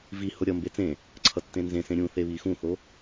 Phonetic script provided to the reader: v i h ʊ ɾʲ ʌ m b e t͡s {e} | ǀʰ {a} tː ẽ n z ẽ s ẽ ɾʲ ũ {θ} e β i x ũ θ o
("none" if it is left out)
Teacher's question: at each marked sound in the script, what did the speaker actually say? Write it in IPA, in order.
ẽ, ʌ, θ

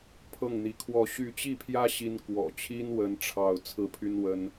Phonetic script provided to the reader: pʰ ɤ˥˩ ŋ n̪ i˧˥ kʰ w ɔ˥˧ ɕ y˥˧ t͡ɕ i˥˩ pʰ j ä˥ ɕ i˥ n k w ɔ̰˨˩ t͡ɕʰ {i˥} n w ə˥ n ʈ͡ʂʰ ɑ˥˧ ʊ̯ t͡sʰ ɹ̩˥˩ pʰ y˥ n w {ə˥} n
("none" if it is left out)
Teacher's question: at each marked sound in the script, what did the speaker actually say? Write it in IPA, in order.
i˥, ə˥

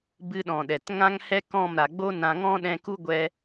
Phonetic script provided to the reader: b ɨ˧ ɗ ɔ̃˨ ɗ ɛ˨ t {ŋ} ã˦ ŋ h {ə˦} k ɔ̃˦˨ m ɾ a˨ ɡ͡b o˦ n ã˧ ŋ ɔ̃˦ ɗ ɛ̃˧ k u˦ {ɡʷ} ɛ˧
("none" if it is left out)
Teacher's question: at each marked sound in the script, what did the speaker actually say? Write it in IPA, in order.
ŋ, ɛ˦, ɡʷ

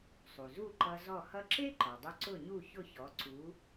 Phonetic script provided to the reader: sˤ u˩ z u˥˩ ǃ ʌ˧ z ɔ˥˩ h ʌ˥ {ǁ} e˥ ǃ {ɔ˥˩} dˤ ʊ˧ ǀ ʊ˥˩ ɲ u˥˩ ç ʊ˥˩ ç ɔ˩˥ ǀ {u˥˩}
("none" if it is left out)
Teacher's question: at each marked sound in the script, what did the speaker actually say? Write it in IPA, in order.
ǁ, ɔ˩, u˩˥

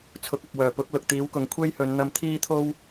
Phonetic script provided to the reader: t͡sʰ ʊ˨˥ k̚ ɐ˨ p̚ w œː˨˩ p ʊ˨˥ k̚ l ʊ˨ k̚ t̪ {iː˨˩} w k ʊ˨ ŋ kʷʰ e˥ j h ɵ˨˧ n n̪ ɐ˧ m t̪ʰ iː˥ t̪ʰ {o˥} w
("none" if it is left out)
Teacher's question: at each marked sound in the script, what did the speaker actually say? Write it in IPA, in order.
iː˨˥, o˥

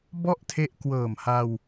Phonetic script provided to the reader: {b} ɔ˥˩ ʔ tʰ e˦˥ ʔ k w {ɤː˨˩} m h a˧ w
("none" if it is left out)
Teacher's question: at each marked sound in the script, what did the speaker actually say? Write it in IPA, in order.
b, ɤː˨˩

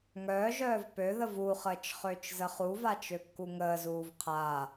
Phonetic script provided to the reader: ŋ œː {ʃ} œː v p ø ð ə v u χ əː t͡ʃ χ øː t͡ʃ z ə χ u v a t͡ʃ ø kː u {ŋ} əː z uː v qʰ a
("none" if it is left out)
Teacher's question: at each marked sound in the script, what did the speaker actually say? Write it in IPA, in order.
ʒ, ŋ

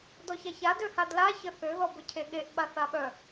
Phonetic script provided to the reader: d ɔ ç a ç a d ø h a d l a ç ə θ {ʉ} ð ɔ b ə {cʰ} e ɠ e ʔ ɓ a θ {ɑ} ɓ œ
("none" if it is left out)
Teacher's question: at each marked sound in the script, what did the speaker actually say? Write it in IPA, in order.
ø, cʰ, a

